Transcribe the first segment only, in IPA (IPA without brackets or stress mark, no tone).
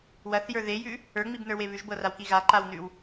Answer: w